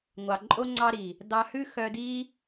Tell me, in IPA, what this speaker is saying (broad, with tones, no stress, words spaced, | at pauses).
ŋʷɑ˨ǃʼo˦ ŋ͡ǀɑ˧ɾi˨ | dɑ˧hʉ˦xœ˧di˦